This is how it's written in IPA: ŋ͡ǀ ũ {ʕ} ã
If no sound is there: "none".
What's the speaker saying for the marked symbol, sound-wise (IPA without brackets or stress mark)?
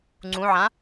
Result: ʕ